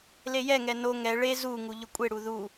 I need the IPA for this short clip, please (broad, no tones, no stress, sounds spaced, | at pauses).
l e j ɛ ŋ ɛ n o ŋ ɛ ɭ e z u ŋ u ʎ ʊ kʷʼ e ɽ u ð u